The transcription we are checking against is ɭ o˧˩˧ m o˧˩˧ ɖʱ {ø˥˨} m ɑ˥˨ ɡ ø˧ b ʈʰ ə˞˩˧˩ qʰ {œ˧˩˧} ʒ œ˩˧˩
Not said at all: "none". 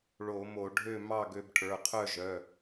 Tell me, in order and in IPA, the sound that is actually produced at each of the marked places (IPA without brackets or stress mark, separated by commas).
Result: ø˥˨, œ˥˨